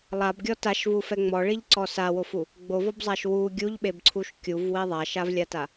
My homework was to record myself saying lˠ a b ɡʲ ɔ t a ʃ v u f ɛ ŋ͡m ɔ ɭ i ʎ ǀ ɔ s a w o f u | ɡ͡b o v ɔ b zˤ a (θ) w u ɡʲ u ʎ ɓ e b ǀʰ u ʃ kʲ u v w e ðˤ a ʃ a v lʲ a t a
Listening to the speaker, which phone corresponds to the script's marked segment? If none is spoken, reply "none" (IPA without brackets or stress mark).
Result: ʃ